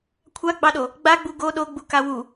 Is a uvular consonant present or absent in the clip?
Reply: absent